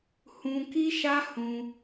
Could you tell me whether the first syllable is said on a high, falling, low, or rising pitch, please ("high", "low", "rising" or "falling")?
high